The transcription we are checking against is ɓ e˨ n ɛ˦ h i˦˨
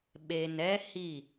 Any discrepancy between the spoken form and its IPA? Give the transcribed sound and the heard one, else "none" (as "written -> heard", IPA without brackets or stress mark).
none